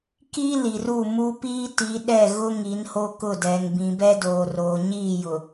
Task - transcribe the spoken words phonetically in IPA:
ki˦ li˨ru˦˨mu˦ piː˦ti˨˦ ɗɛ˦˨ ɣʊ˦ ŋi˨˦nho˦kʊ˦˨dɛ˨ŋ bĩ˨bɛ˦doː˨roː˨ ɲiː˦˨jʊ˨

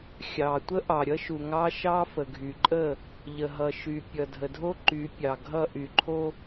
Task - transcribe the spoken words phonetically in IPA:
xʲɑ˨ tʷə˦ʔɑ˨ɾʲʌ˦ ʃu˨ŋɑ˦ʃɑ˦ fə˨ɡʱy˨ǃʼə˦˨ | ʎə˨ɦʌ˨ʃy˨ pʲʌ˨dʱə˨ dʱo˦ ǃy˨˦pʲɑ˨ɡʱʌ˦˨ ʔy˨ǃʰo˦

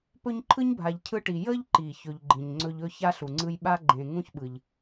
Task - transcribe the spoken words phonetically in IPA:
pɵ˦ɲǃʰɯ˥ɲbʱa˨ʎ cʰɯ˥ʈi˨ jə˦ʎǃi˩ çɵ˨ʎɡ͡ǃĩ˩ɲŋ͡ǀɵ˦ʎ ɵ˦ ça˥ɬu˩ŋ͡ǀɯ˦j ɓa˥ɡ͡ǃẽ˨ ŋũ˥çɓɯ˩ʎ

